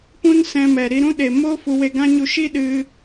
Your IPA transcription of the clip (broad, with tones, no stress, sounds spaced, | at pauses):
p ũ˦ n s ɛ̃˧ m ɛ˨ ɾ i˧ ɾ ũ˦ ɗ e˨ m o˦ f u˧ w e˧ ɡ ã˦ ɲ u˧ ʃ i˦ ɗ ɨ˧